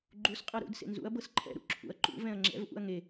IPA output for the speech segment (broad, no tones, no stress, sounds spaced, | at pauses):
ɡ͡ǃ u s qʼ ɤ ɾ ṵ d s ḛ n z ṵ ɐ̯ b ɤ s ǃʰ ɛ̰ ɾ ṵ ǁʰ ṵ ɐ̯ ǃ ṵ v ɛ̃ ɐ̯ ŋ͡ǁ ɛ̰ v ʔ ṵ ɐ̯ ŋ e